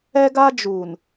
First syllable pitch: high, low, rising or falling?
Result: high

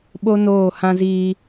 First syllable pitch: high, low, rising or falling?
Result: high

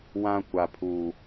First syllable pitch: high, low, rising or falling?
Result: high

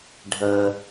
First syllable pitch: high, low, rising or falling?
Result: low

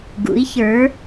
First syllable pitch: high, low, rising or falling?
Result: rising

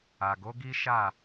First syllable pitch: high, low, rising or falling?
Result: low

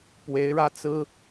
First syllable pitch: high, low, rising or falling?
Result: rising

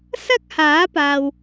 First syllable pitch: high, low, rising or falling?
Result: high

